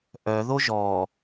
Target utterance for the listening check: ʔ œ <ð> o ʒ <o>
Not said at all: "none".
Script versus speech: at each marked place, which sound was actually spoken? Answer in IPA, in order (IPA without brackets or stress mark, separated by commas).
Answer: ð, ɔ